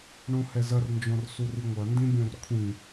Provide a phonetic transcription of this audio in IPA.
ɳ õ h ɛ z ɐ r n d͡ʒ ɔ̃ r s u r i ŋʷ ɐ n d ĩ bʲ õ r kʷʰ ĩ

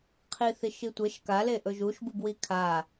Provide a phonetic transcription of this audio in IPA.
qʰ i θ i ʃ i tʷ e ʃ k a l e ʔ ɵ ʒ u ʃ b u b w i kʰ a

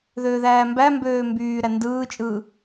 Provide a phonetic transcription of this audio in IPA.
ð øː ð æː m b æ m b øː m b yː ɾ æ n d ɯː t͡ʃʼ ɯː

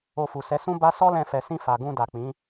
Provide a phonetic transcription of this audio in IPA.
o˧ f u˨ s ɛ˨˦ s ũ˦ b a˦ s ɔ˦ l ɛ̃˧ f ɛ˨ s ĩ˧ f a˨ ɡ ũ˧ d a˨ k͡p ĩ˨˦

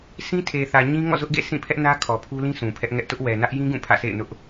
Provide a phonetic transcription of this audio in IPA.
sʰ ĩ˦ tʰ e˨ θ ä˨ ɲ ĩ˦ ŋ ɔ̰˦˨ z ʊ˦ ʔ ɡ ḛ˦˨ sʰ ĩ˦˨ pʰ ɛ˦ ʔ n ä˦ kʰ ɔ˨ pʰ u˦ l ĩ˦ s ũ˨ pʰ ɛ˦ ʔ ŋ ɛ˦ ʔ t ʊ˦ ʔ w ɛ˨ n ä˦ ʔ j ĩ˦ ɡ ũ˦˨ pʰ ä̰˦˨ sʰ ḛ˦˨ ɪ̯ n ʊ˦ ʔ

